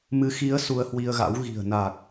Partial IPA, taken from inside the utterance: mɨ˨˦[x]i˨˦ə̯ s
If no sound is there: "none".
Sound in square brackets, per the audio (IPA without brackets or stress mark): x